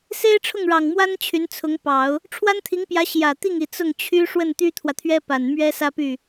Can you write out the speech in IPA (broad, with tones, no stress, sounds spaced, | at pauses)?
s e˥ ɪ̯ ʈ͡ʂʰ ʊ˥˩ ŋ ɻ ɑ˨˩ ŋ m w a˥ n t͡ɕʰ y˧˥ n t͡sʰ ʊ˧˥ ŋ p ɑ˨˩˦ ʊ̯ | ʈ͡ʂʰ w a˥ n t̪ʰ i˧˥ ŋ p j ä˧˥ ɕ j ä˨˩ t̪ i˥˩ ŋ i˨˩ t͡s ʊ˥˩ ŋ t͡ɕʰ y˥ ʂ w ə˥˩ n t̪ y˥ t̪ʰ w ä˨ t̪ʰ ɥ ɛ˥ p a˨˩ n m ɥ ɛ˥ s ä˥ p y˥˩